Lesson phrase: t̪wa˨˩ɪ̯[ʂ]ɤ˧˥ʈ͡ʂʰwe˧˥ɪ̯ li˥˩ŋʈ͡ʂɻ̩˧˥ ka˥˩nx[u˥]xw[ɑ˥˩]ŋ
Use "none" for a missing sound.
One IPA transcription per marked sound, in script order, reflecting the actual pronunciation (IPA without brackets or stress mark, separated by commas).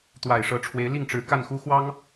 ʂ, u˥, ɑ˥